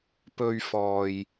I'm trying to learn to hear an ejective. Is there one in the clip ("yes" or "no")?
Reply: no